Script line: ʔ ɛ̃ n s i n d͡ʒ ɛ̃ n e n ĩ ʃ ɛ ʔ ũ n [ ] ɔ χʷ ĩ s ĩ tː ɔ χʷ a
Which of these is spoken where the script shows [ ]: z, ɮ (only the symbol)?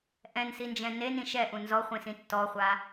z